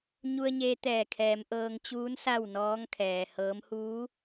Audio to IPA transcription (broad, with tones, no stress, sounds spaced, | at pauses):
ɲ u˧ ə̯ ɲ eː˧ t̪ ɛː˧˩ kʰ ɛː˩˧ m ʔ ɤː˧ ŋ t͡ɕ uː˧˥ n s a˥˨ w n ɔː˧˥ ŋ kʰ ɛː˩ h ɤː˧˥ m h uː˧˥